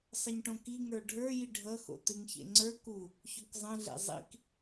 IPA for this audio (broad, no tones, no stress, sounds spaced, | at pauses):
sˤ ə ɲ ʈ õ k i ŋ ə˞ ɖʱ ə˞ j i ɖʱ ʌ x o̰ t ɨ ŋ ç ḛ ŋ͡ǀ ə˞ k u | ç o k zˤ ə̃ ɮ ḛ zˤ ḭ k